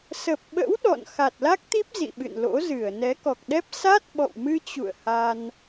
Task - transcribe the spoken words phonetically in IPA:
sə˨˩p̚ɓə̰˧˥w ɗɔ̰˧˨n xa˨˩t̚la˦˥k̚t̪i˦˥p̚ zḭ˧˨ɓɨ̰˧˨nlo̰˧˥ zɨ˧˩ə̯ nɛ˨˦kɔ˨˩k̚ɗɛ˦˥p̚ sa˦˥t̚ ɓɔ̰˧˨wmɨ˧t͡ɕṵ˧˨ə̯ ha˧n

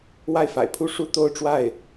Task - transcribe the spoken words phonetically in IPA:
wa˥˩ɪ̯fa̰˨˩ɪ̯pʰu˥ ʂu˥ t̪o˥˧ʊ̯ʈ͡ʂwa˥˩ɪ̯

